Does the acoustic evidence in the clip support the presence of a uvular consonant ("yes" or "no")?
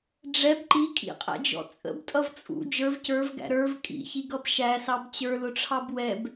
yes